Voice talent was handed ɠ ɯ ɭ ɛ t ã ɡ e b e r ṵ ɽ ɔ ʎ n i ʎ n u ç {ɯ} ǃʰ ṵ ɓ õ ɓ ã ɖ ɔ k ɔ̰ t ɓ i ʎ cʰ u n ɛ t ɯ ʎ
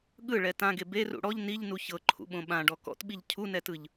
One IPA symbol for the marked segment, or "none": ɤ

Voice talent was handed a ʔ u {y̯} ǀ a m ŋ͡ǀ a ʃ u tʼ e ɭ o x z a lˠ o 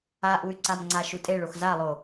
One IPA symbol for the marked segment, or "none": y̯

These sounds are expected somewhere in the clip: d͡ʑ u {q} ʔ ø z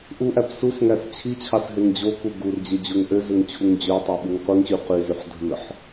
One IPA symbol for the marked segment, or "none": ŋ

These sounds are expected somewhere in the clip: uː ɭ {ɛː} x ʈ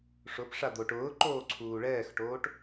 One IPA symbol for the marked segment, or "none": ɛː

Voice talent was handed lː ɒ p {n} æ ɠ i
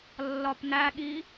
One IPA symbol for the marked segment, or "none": n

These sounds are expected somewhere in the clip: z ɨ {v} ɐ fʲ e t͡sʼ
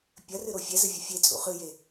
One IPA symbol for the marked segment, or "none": vʲ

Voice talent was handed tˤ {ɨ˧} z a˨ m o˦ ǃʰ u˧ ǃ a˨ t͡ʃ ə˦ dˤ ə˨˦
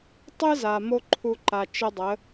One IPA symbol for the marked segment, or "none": ɨ˧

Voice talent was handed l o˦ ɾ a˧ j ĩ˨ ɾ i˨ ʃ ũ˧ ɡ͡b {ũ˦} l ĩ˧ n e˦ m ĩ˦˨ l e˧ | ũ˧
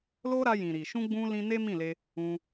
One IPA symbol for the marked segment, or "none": ũ˧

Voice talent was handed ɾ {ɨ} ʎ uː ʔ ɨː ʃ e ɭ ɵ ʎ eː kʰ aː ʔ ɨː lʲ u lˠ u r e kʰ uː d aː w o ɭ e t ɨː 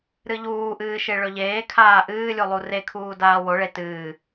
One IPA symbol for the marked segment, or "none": ɨ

